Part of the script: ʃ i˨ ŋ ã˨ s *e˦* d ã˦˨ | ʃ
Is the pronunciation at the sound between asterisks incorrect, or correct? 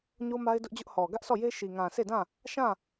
incorrect